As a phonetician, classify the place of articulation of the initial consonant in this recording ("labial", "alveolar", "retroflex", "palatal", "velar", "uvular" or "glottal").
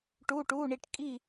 retroflex